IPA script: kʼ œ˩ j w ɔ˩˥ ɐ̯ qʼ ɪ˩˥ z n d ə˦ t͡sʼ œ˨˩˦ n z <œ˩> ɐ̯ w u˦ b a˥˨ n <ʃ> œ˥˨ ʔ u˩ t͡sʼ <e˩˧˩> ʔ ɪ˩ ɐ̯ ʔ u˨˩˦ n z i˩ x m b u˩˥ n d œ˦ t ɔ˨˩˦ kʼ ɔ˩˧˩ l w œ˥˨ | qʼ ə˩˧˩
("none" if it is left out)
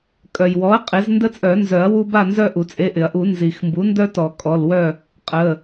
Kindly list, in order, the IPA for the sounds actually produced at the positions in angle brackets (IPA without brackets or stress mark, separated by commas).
œ˨˩˦, z, e˩˧˩